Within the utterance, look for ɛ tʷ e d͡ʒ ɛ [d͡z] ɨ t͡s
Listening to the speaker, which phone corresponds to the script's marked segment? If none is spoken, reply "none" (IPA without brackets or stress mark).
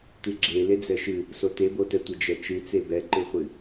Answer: t͡ʃ